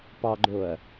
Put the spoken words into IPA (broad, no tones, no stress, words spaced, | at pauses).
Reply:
pɑɡ͡ǃoɐ̯